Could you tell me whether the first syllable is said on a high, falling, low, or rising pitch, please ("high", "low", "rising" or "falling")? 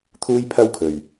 high